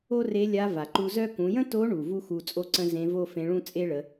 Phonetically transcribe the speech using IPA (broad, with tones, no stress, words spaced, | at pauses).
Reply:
o˥re˧˥ lʲa˧˥va˩ǃu˧zœ˥ kũ˩˧jə̃˥to˧˥ɳu˩ vu˥xu˧t͡sʼo˥ǀə̃˥ zẽ˧˥vo˥fẽ˧˥ɭũ˥ t͡sʼe˥ɭə˩˧